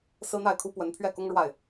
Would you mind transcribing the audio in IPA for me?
sɹ̩˥n̪a˥˩ɪ̯ kʰu˥pwə˧˥n pʰɥɛ˥˩kʊ˥ŋ ɻwa˥˩ɪ̯

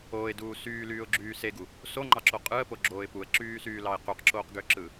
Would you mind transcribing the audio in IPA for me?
oːɪ̯duː syːlyːʊ̯ɡ͡ǁyː seɡu | soŋ͡ǃɑǁo qʼɯə̯poɡ͡ǁoːɪ̯ puə̯ǁyːsyːlɑɪ̯ qyqǁoːqɡøǁɯ

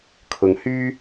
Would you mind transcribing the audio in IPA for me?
kʰʊ˧ŋhyː˥

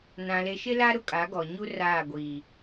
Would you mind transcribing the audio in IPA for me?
nã˨le˨ʃɪ˦la˦ ɾʊ˦ kʼa˨˦ɡɔ˨ɲu˦raː˦˨ ɡʷiː˨

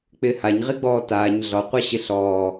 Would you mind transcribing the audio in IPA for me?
k͡pɪːhaɲ ʁiɡ͡bɔːtaːɲ ɮɔqʷa ɕɪɬɔː

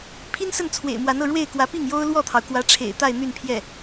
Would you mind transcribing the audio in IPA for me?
pʰi˥nsə˥˩n t͡sʰwḛ˨˩ɪ̯mwa˧˥nɤ˥˧ ɻwe˥˩ɪ̯kwä˧˥ pi˥˩ŋjo˥ʊ̯ lwɔ˥˩t̪ʰɑ˩ʊ̯kwä˧˥ʈ͡ʂʰḛ˨˩ɪ̯ t̪a˥˧ɪ̯ n̪y˥˧n pʰjɛ˥˩

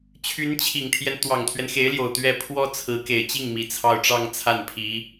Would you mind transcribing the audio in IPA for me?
t͡ɕʰy˧˥nt͡ɕʰi˨˩ŋt̪ʰjɛ˦n t̪wɑ˨˩ŋt̪ʰɥɛ˦nxe˧˥ɪ̯ljo˨˩ʊ̯ t̪ɥɛ˥˩ pʰwɔ˥t͡sʰɹ̩˧˥ke˨˩ɪ̯ t͡ɕi˥˩ŋ mi˧˥t͡sʰɑ˥˧ʊ̯ ʈ͡ʂɑ˥˧ŋt͡sʰa˥˩npʰi˧˥

